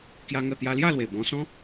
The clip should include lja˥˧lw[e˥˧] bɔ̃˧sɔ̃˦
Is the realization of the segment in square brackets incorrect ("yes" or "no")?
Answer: yes